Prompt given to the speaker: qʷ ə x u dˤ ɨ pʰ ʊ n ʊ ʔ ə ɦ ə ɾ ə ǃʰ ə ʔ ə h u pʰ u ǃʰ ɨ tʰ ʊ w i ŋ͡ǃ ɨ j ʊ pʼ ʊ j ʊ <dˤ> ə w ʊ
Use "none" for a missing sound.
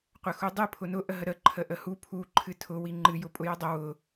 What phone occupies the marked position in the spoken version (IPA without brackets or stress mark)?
dˤ